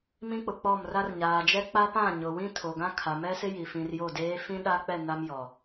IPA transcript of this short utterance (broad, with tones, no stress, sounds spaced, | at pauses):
m ĩ˦ k͡p ʊ˨ k͡p ɔ˦˨ m r a˦ r ɲ aː˨ d͡ʒ ɛ˦ k͡p a˦ p ã˦˨ ɲ ʊ˨ w ĩ˦ tʰ o˨ ɡ ã˦ kʰ a˨ m ɛ˦ s ɪ˦ j i˨ f ĩ˨ r j o˦˨ d eː˦ f ĩ˦ ɗ a˦ k͡p ɛ˦˨ n a˦ m j ɔ˨